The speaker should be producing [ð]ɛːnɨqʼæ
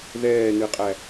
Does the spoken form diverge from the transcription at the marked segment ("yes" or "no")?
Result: no